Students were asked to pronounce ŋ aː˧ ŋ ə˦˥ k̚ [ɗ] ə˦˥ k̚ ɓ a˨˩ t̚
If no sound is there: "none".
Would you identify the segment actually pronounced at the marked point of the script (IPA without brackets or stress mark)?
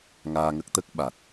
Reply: t̪